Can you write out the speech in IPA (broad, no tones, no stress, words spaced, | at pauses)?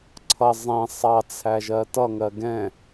ǀʰʌ zˤɛ̃ sˤɑt͡sʰæʒɜ tʌŋɜ ɡɛ̃